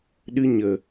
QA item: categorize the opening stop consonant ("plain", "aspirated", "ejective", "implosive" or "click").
implosive